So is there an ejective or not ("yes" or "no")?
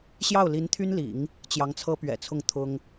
no